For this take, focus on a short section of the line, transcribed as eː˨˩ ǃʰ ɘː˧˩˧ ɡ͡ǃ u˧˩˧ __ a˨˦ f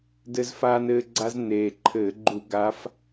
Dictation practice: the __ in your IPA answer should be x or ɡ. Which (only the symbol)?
ɡ